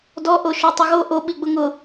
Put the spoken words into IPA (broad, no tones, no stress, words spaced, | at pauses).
dɔʔoʃo tˤʊɣo ʔoɓi ɡ͡bʊŋʊ